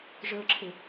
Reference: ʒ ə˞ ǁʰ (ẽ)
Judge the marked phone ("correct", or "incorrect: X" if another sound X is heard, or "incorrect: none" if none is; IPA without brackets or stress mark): incorrect: e